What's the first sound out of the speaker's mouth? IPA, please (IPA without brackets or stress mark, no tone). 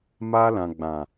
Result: m